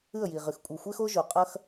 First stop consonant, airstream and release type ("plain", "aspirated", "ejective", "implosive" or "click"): ejective